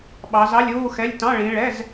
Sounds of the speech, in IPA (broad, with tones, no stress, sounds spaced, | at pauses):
ɓ ɑ˨˦ z ɑ˧˥˧ lʲ uː˧˥˧ x ɛ˧˥˧ lʲ t ɑ̃˧˥˧ ɭ ĩ˨˦ ɭ ɛ˧˥˧ z